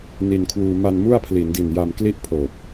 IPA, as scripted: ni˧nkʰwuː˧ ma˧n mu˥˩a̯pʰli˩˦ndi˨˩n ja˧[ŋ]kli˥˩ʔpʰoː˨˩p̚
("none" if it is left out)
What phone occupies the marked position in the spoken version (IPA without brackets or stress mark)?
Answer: m